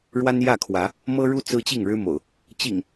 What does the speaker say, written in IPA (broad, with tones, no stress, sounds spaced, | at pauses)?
ɻ w a˦ n j ä˥˨ kʰ w ä˨˦ | m ɤ˦ ɻ u˦ t͡s ɹ̩˦ t͡ɕ i˥˨ ŋ ɻ ɻ̩˦ m o̰˨˩ ʊ̯ | t͡ɕ ḭ˨˩ ŋ